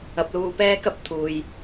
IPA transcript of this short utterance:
ɐ˨˥p̚luː˧ pɛː˥kɐ˥p̚ t̪ʰuː˨j

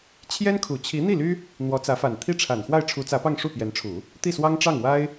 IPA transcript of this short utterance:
t͡ɕʰjɛ˥nkʰu˨˩ t͡ɕʰi˧˥n̪i˥˩ly˥ | n̪wɔ˧˥t͡sä˧˥fa˨˩n t̪ʰi˥˩ʈ͡ʂʰa˨˩n xwa˥˩ɪ̯ʈ͡ʂʰu˧˥t͡sä˧˥pɑ˥˧ŋ ʂu˥˩pjɛ˧˥nʈ͡ʂʰu˨˩˦ | t̪i˥˩swɑ˥ŋʈ͡ʂɑ˥˩ŋ wa˥ɪ̯

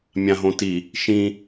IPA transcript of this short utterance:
mʲãɦõti | ʃĩ

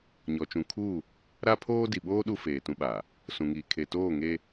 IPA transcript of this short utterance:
ɲɔ˨t͡ʃũ˨kʰuː˦˨ | ɾa˦pʰoː˦ di˨ɓoː˦ ɗu˦feː˨tũ˦ɓaː˨ | sũ˨ŋiː˨ kʰe˨toː˦˨ŋeː˦

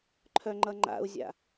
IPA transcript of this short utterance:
ǃʰœŋ͡ǃʌŋ͡ǃa̰u̯zʲa̰

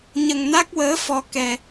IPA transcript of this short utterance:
ɲə˧ŋna˦˥k̚wəː˧˥ fɔ˧ kɛ˧

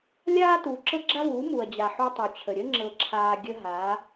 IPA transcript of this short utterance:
lʲaː˦ tuː˨ǁɤ˦ɡ͡ǁa˦vuː˨˦ mu˨ɐ̯d͡ʑa˨ ħu˦tˤu˨t͡ɕʰə˨ ɾʲə˦ŋ͡ǁɤ˨ǁʰaː˨ ɡʲə˦ɦa˨˦

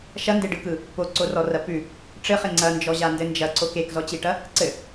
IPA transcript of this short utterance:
ʃɐndeɖɯkɯ | poǀorɔrɐ pʉ | ʈ͡ʂɘχe ŋ͡ǀɐnd͡ʒɔʑandɘ nd͡ʒɐǀok ekzɔt͡ɕiʈɐ | ǀɘ

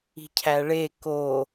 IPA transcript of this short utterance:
i̤cʰæɭe ko

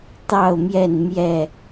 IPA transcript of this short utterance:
t̪ɑ˥˨ʊ̯mjɛ˥˨n mjɛ˥˨

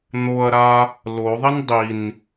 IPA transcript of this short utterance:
n̪oɐ̯ɾa | loðˤin dˤin

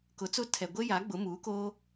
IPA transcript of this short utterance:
kʊ˨˦t͡sʊ˦tʰɛ˨ ɡʷe˦ja˨˦ɡ͡bʊ˨˦ muː˨˦koː˦

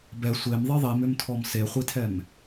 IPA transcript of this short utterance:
bɛ sʷemðˤi ðˤimʏmtʰɔm seχʷitʰɛm

